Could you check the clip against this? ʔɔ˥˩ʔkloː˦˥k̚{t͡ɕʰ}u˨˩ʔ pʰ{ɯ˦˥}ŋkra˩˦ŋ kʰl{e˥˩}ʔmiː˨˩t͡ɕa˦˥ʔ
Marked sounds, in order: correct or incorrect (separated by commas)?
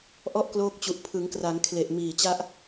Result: incorrect, incorrect, incorrect